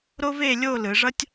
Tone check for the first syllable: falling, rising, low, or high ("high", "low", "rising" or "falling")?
high